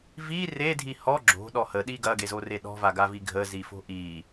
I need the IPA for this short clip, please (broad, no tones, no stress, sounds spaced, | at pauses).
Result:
v i r e dʱ i h ɔ ɡ͡ǁ o̤ ɗ ɔ h ə ɗ i ɡ ɐ ɡ e z o r e ɗ ɔ̤ v a ɡ a v i ɡʱ ə z i f o̤ ʔ i